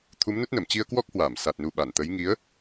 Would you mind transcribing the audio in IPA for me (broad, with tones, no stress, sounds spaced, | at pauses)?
t̪ʰ u˨˦ m n ə˦˥ t̚ n ə˧˩ m t͡ɕ i˧ ə̯ k w ɔ˦˥ k̚ h w aː˧˩ m s a˨˩ t̚ n u˨˩ ɓ a˧˩ n t̪ ə˨˦ j ŋ i˨˦ ə̯